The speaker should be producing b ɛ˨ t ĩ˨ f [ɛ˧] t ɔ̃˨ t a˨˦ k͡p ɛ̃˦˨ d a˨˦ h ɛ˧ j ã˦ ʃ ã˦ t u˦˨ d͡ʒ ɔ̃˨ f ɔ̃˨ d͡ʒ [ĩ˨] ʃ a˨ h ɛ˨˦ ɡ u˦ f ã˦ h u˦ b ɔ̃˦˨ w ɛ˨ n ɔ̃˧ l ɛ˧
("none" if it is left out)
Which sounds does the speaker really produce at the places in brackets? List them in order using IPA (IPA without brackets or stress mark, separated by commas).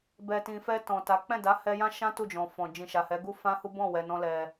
ɛ˧, ĩ˨